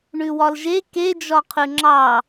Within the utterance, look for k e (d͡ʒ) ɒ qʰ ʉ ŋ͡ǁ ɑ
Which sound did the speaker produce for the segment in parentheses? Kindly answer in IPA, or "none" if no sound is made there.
d͡ʒ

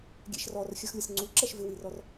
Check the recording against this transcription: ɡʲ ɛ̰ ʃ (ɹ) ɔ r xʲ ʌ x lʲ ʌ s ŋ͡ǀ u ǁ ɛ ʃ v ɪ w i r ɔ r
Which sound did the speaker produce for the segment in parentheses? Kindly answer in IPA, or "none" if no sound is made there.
r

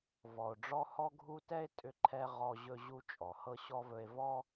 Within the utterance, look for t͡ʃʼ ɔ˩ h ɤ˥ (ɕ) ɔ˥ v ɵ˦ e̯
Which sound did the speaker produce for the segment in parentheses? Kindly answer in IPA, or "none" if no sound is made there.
ɕ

